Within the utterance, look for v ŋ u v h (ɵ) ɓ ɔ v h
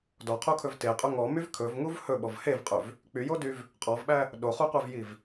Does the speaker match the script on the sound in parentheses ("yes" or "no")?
yes